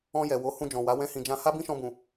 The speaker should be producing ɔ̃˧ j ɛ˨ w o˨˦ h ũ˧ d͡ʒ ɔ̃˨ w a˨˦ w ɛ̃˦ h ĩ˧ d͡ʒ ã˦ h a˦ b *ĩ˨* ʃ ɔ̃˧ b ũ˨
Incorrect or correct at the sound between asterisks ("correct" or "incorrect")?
incorrect